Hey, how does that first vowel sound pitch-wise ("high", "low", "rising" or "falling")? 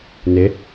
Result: rising